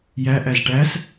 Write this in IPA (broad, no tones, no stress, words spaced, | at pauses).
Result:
jæ ʔæzʈæs